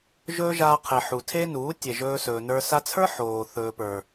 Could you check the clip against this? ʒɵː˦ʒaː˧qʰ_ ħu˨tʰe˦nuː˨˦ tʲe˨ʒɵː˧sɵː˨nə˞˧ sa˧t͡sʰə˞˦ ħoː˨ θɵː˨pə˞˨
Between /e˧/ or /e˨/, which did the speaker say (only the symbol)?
e˨